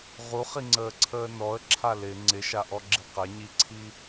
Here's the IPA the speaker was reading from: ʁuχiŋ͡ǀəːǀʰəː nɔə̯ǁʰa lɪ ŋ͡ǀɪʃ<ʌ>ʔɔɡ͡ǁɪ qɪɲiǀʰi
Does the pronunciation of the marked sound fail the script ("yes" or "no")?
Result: yes